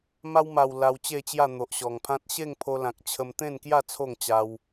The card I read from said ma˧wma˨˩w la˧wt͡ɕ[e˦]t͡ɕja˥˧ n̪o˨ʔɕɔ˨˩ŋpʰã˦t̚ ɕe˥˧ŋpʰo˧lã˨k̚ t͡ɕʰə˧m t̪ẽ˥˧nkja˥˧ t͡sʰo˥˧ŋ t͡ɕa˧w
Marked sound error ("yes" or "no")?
yes